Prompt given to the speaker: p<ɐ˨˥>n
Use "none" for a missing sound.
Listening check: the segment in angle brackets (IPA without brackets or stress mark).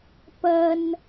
ɐ˥